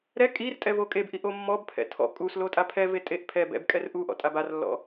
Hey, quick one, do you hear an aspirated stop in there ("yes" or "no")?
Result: yes